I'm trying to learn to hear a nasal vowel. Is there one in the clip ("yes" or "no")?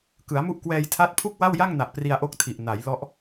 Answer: no